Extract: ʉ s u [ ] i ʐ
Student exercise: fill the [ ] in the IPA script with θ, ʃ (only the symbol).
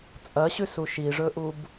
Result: ʃ